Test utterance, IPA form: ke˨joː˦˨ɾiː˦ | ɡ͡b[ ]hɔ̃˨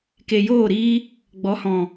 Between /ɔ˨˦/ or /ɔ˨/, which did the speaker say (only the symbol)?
ɔ˨˦